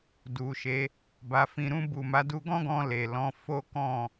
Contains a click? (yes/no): no